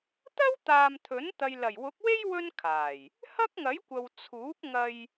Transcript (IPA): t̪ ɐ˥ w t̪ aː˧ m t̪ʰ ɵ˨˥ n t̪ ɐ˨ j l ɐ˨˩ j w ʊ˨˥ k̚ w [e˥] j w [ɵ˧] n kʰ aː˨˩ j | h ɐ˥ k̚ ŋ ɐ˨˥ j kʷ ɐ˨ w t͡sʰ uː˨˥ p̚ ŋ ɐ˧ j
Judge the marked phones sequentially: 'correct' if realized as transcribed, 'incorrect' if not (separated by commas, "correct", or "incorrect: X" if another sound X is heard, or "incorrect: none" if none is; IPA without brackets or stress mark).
correct, incorrect: ɵ˥